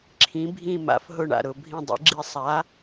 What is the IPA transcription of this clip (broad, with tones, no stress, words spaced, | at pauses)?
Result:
ǁʰĩ˨˥ bʱĩ˦˨ma̰˨˥f ɦʊ˦˨ɳa̰˨ɾʊ˦˨ bʱĩ˦˨dˤḭ˨˥ɡ͡ǁi˦˨ sˤa˨˥